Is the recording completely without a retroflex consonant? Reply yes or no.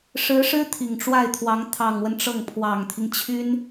no